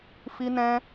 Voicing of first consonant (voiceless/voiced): voiceless